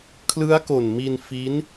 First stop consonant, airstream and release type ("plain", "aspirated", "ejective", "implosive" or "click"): aspirated